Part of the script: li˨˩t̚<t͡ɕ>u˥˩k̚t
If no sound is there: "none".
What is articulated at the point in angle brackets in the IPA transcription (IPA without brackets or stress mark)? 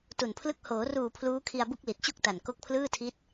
t͡ɕ